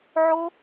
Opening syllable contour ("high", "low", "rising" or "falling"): high